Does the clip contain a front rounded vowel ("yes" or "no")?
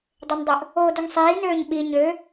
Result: yes